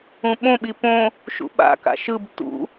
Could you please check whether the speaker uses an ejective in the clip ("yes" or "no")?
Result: no